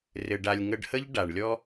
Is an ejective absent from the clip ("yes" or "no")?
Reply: yes